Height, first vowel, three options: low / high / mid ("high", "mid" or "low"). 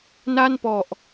low